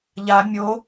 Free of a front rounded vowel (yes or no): yes